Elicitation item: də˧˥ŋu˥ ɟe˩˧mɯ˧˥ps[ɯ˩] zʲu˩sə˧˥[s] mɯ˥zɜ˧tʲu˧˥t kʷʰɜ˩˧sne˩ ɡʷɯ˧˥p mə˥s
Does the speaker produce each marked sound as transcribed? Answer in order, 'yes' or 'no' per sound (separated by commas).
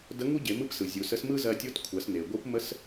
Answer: yes, yes